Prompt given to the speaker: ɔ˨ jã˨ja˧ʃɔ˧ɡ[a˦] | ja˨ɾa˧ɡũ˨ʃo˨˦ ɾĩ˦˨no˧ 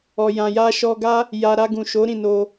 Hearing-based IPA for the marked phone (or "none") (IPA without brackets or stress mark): a˦